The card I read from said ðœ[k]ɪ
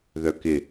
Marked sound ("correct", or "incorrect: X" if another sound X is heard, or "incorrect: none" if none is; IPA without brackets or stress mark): correct